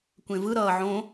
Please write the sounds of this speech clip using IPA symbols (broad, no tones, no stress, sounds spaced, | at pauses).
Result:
kʷ ẽ v ɯ ɾ ʌː ʕ õ